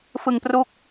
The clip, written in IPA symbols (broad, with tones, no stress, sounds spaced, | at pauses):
f ɯ˨˩ ŋ p r u˦˥ k̚